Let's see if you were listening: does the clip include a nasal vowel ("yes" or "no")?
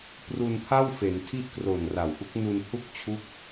no